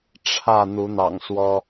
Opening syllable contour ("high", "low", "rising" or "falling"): falling